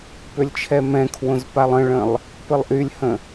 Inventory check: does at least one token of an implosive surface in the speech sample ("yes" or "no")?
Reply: no